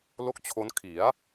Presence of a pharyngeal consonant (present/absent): absent